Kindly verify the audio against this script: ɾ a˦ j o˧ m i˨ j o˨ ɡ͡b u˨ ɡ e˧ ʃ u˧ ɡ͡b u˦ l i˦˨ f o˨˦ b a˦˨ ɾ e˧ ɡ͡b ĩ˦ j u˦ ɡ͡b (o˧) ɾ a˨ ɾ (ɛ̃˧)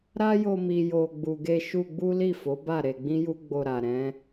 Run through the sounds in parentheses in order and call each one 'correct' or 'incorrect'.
correct, incorrect: ɛ̃˨˦

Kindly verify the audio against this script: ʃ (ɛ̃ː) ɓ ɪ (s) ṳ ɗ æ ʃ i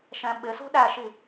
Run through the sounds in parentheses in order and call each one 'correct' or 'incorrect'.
incorrect: ɛ̃, correct

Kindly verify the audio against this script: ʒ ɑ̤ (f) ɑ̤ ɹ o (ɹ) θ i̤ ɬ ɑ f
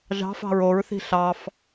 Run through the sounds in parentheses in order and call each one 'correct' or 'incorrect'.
correct, correct

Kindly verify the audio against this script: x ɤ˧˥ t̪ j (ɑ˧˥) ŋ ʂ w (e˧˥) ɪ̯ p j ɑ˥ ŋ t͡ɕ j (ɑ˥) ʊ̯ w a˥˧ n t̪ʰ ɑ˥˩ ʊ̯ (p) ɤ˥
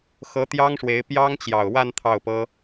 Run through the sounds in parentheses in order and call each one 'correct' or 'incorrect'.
incorrect: ɑ˥, correct, incorrect: ɑ˨˩, correct

